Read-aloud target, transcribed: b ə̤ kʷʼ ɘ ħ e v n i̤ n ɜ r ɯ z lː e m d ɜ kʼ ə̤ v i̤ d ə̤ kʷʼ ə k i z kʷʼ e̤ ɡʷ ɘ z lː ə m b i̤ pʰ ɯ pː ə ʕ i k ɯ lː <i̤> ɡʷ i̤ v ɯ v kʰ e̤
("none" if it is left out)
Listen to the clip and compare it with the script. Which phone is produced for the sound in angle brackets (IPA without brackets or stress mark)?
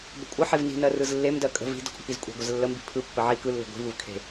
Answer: e̤